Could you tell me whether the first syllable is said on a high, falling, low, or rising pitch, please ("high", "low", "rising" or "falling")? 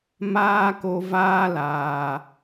high